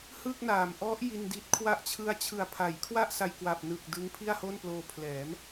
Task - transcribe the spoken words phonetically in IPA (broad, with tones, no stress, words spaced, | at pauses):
hɯ˥˩k̚naː˩˦m ʔɔ˦˥ʔ ji˧ndi˦˥t̚kʰwa˥˩ʔ t͡ɕʰɯ˧a̯t͡ɕʰɯ˨˩a̯pʰa˩˦jkʰwa˥˩ʔ sa˧jkwa˨˩p̚nɯ˨˩k̚ dɯ˦˥ŋpʰi˥˩a̯ho˥˩nploː˧ pʰlɛː˩˦m